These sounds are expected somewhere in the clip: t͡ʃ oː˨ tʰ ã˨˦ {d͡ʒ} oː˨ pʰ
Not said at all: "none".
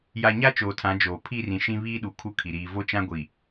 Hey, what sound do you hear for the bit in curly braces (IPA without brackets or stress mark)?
d͡ʒ